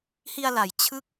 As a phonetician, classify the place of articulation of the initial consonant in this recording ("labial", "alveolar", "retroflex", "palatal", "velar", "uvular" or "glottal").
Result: glottal